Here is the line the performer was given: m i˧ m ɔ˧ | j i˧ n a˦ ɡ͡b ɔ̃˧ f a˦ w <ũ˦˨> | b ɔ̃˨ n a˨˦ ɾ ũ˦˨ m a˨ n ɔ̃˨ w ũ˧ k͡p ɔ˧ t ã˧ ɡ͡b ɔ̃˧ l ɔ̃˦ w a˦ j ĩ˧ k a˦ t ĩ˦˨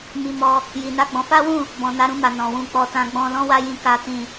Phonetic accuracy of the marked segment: correct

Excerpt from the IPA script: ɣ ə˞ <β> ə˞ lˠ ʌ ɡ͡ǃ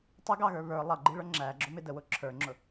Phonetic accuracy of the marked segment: correct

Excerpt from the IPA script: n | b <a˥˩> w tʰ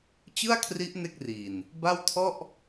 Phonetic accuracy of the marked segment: correct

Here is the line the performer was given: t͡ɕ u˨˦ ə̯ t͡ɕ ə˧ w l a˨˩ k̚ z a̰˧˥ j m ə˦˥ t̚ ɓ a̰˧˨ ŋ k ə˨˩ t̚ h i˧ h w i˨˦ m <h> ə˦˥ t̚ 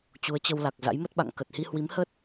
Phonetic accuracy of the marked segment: correct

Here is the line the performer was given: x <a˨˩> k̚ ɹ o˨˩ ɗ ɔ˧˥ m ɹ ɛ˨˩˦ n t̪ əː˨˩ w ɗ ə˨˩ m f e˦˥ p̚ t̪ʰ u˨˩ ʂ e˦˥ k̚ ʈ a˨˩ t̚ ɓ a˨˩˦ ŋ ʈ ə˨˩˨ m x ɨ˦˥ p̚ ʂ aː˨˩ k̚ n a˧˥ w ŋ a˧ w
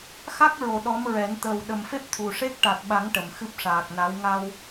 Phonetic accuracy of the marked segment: incorrect: a˦˥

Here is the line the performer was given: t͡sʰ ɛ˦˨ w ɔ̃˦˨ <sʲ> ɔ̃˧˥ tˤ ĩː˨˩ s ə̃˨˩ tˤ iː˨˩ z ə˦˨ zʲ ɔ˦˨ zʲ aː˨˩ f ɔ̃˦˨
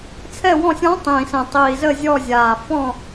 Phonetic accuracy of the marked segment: correct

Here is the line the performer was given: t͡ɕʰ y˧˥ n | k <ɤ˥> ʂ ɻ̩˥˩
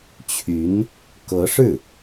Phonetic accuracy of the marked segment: incorrect: ɤ˧˥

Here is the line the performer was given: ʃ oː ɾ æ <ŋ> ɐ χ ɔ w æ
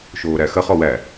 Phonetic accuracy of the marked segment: incorrect: x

